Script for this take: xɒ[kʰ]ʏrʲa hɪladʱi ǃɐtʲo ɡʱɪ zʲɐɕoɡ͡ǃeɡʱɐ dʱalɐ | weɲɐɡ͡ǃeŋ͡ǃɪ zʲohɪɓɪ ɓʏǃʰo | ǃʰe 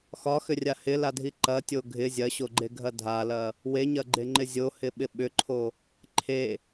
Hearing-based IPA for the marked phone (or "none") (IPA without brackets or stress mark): x